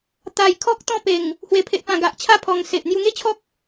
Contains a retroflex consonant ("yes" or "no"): no